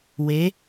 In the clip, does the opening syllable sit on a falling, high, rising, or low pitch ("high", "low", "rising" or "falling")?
rising